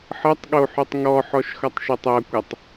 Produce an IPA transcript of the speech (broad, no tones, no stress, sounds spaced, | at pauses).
ħ ʌ tˤ ɠ o ħ ʉ tˤ ŋ ɔ ħ ɔ ʃ x ʌ tˤ ʃ o tˤ ʌ kʷ ʌ tˤ